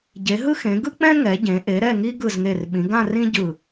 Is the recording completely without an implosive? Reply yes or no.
no